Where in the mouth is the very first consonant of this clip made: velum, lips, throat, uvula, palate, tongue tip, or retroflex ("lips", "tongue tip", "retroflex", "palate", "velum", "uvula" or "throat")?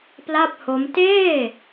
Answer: lips